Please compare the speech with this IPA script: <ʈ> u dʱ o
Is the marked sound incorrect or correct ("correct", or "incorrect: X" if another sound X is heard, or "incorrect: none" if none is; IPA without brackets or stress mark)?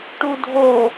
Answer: correct